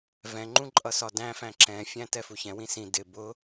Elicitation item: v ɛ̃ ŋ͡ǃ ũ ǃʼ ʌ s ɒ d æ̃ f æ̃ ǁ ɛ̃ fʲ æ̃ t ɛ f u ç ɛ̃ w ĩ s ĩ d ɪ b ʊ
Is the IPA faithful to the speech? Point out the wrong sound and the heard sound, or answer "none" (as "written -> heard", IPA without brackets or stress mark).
none